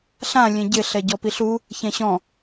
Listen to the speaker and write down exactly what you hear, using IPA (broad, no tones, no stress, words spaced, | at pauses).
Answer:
ɬã lʲẽɟɪ ɬɛɟɔpiɬu | çɛ̃ɕɔ̃